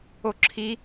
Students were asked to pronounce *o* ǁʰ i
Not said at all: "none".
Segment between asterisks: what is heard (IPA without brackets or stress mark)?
o